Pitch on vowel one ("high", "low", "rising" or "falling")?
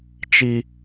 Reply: high